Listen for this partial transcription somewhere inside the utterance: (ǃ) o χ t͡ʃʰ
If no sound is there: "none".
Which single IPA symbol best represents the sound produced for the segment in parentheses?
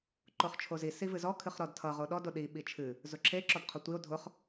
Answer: ǃ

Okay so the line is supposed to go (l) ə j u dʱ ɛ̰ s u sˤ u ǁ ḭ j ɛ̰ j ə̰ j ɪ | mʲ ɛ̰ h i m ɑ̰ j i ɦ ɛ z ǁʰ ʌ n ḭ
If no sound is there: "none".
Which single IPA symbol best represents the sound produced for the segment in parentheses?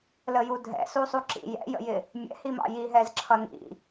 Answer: l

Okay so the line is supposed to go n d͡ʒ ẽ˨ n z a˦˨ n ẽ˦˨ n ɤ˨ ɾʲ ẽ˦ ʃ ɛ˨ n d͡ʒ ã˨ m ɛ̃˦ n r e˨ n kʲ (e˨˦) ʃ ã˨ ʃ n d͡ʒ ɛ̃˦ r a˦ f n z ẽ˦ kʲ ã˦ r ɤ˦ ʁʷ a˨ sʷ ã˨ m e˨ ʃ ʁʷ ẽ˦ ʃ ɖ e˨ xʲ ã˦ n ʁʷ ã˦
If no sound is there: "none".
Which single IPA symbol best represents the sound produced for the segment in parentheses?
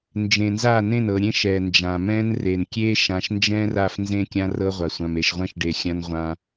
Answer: e˦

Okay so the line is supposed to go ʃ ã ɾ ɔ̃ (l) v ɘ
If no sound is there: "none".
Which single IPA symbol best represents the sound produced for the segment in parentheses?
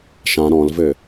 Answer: l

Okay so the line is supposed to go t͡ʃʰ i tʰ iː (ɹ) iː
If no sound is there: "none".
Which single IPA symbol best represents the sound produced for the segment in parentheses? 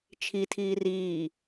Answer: r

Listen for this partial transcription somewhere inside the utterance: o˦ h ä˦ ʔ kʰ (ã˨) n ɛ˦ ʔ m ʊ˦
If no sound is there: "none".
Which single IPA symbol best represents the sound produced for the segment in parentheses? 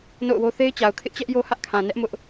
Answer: ã˨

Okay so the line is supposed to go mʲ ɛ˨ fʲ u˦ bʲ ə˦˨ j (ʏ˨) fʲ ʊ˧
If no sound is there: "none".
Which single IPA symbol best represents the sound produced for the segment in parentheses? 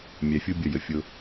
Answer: ə˨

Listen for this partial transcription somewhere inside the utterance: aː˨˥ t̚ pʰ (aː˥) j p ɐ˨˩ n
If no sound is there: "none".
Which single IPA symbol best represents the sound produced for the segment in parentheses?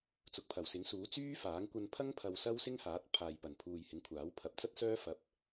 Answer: aː˨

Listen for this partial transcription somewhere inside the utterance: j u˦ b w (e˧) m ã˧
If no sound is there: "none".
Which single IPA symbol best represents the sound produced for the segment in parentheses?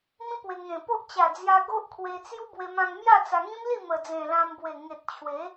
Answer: e˧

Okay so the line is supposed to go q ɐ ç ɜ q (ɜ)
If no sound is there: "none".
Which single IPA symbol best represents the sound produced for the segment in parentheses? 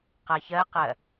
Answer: ɜ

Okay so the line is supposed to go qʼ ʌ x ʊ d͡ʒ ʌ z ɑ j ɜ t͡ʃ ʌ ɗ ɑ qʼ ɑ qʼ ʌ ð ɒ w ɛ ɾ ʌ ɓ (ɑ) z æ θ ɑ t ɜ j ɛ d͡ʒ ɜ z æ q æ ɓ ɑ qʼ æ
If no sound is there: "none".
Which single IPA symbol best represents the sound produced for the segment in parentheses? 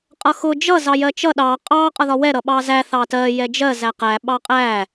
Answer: ɑ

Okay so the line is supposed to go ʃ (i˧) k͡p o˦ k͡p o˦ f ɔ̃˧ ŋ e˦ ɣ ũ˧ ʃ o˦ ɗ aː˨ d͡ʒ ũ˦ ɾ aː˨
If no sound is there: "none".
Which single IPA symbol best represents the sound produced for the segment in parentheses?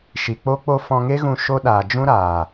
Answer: i˨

